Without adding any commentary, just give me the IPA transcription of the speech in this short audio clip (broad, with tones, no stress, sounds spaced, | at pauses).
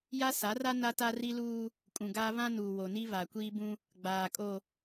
j a˦ s a˨˦ r a˦ n a˦ t a˦ r i˦ l uː˦ | kʼ ũ˨ ɡ aː˦ β ã˦ n uː˨ w o˨ n i˦ β a˨ kʷ iː˦ b ũ˦ | ɡ͡b aː˨ kʼ o˨